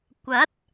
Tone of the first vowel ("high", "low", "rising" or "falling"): rising